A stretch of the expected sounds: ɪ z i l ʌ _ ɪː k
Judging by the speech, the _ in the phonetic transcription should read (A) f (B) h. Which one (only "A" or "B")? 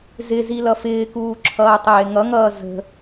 A